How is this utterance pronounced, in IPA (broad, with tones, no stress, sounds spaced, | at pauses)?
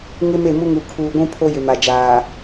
ŋ ɪ˦ m e˦˨ m u˦ ŋ u˨ kʰ uː˨ ɡʷ ũ˦ pʰ o˦ j ɪ˨ m a˨ d͡ʒ aː˨